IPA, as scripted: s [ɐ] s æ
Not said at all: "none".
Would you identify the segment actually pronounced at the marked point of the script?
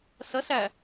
ɐ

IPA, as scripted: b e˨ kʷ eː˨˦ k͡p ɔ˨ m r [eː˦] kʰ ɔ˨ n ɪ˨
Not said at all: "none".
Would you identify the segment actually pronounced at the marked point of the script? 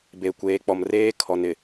eː˦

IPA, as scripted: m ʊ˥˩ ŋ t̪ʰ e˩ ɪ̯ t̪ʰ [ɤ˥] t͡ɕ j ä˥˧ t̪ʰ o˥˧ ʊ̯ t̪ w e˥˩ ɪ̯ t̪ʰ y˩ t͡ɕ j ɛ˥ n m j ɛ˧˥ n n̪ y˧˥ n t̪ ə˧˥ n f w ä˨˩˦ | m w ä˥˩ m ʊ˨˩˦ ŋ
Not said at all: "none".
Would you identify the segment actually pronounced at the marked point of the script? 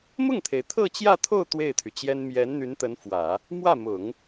ɤ˥˧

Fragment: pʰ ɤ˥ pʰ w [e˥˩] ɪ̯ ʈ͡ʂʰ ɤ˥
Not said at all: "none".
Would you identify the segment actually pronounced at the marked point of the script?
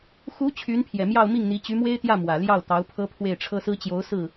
e˥˩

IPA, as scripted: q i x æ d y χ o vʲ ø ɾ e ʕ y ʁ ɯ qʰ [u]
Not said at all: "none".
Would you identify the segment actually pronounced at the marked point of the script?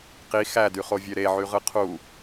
u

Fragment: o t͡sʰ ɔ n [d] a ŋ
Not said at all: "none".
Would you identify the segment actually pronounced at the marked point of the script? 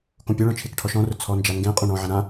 d͡ʒ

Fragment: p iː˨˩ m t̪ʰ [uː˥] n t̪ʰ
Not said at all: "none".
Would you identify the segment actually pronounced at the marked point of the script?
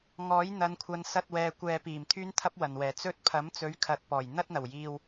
yː˥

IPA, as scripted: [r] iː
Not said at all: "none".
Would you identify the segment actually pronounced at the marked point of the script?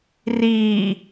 r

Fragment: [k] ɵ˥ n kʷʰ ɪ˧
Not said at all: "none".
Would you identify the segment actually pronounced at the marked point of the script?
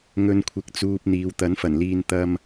ŋ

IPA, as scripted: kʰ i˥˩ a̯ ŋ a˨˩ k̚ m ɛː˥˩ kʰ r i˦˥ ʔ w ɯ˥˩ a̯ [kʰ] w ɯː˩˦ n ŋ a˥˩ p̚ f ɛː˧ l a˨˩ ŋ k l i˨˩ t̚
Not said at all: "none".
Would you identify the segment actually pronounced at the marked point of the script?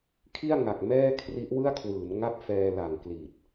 kʰ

